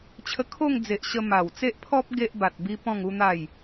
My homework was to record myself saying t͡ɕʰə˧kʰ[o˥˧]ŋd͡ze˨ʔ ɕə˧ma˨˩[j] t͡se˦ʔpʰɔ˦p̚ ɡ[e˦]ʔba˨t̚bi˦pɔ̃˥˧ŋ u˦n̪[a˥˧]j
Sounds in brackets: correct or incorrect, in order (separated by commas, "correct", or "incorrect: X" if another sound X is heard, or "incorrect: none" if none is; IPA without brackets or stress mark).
correct, incorrect: w, correct, correct